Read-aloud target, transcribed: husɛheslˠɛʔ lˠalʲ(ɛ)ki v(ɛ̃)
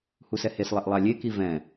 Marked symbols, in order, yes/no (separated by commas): no, yes